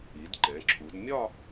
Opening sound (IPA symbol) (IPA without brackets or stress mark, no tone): i